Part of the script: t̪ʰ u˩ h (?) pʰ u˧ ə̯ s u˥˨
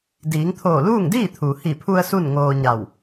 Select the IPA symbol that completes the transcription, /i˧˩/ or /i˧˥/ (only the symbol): i˧˩